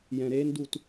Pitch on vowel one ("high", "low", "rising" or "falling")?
low